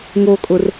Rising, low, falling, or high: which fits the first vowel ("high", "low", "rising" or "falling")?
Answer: low